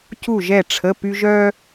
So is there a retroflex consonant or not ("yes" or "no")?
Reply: yes